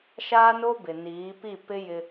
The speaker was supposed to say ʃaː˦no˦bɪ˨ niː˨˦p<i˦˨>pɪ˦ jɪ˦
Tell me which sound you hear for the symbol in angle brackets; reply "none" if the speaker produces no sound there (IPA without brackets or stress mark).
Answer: i˦˨